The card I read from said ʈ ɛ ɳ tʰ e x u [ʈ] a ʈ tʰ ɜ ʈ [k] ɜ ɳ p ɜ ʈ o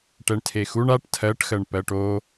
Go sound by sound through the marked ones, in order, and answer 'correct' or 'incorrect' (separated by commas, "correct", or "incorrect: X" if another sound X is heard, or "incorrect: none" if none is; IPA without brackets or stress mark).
incorrect: ɳ, incorrect: x